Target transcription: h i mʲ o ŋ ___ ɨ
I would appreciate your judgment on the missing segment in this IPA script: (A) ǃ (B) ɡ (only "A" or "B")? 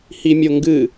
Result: B